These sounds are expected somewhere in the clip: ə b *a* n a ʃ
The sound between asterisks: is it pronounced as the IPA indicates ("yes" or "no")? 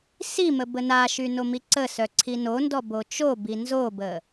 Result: no